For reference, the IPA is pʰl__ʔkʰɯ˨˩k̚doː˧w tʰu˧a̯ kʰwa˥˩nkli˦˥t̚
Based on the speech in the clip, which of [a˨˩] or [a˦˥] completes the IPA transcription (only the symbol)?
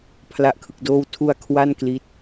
a˨˩